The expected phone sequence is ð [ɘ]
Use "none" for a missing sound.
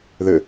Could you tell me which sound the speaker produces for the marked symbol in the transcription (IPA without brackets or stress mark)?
ɘ